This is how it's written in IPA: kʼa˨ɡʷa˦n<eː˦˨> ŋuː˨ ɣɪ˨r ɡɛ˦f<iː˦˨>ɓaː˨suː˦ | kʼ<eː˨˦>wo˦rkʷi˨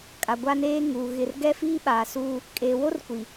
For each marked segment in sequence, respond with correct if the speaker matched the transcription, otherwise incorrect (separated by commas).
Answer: incorrect, incorrect, incorrect